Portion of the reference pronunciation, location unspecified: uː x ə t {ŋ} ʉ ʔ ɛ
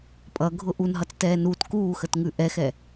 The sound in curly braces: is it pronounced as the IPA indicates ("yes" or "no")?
yes